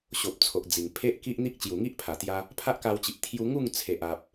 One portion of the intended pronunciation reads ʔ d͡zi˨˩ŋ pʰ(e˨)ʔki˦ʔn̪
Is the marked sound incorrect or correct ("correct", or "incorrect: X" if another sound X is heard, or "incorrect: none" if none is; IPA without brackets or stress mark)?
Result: incorrect: e˦